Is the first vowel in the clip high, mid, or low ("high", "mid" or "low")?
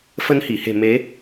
mid